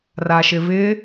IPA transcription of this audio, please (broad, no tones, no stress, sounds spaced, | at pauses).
r a ʃ ɪ v ɪ